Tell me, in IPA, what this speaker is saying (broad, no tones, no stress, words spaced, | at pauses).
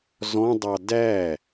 zɔ̃dˤɑ dæ